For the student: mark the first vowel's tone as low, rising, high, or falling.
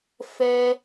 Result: high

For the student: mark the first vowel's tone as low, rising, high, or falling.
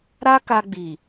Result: high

